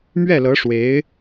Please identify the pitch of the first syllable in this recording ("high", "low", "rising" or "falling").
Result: falling